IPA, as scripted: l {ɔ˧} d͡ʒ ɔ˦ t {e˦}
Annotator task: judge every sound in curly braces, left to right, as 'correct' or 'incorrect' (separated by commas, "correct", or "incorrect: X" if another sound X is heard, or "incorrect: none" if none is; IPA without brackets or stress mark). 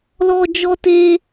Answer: correct, correct